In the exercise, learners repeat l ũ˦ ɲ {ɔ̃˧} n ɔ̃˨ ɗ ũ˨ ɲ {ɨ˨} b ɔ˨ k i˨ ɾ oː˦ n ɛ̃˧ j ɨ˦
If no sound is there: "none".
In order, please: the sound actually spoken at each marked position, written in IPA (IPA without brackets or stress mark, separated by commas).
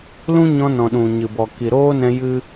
ɔ̃˧, ɨ˨